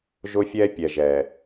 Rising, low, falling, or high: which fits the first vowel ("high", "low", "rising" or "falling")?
high